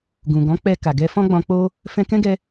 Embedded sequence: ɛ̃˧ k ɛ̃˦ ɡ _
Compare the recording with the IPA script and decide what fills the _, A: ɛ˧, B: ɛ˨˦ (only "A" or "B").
A